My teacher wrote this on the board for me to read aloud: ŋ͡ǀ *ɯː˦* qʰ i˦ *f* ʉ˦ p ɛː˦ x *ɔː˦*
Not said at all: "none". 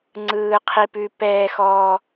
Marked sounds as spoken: ɯː˦, p, ɔː˦

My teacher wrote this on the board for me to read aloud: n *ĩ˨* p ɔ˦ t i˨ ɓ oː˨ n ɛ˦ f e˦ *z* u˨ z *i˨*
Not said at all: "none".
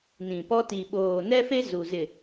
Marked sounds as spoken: ĩ˨, z, ɪ˨

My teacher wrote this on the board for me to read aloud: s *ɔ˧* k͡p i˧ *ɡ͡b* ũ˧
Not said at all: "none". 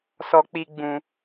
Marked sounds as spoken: ɔ˧, ɡ͡b

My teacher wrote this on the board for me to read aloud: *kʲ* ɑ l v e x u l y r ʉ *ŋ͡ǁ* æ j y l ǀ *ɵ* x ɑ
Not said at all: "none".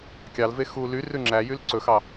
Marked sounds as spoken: kʲ, ŋ͡ǁ, ɵ

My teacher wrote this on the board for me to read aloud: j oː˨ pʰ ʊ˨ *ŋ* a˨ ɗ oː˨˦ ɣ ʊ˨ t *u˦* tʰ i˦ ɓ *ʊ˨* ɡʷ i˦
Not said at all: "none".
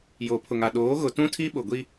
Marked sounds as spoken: ŋ, ũ˦, ʊ˨

